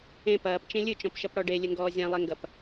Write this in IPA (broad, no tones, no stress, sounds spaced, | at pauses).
ẽ p ɐː p t͡ʃ ẽ lʲ ɨ t͡ʃ ɔ̃ p ʃ ɐ p ɽ ɔ ɖ e lʲ ɘ ŋ ɡ ɔː zʲ ã lˠ e ŋ ɡ ɐ p